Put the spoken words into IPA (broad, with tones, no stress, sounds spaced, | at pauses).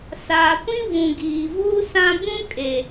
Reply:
s aː˨ kʷ ĩ˦ v ũ˨ ɡ iː˨ v uː˦ s ã˦ b ũ˦ kʼ e˨